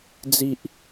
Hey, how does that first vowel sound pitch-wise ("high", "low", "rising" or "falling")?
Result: high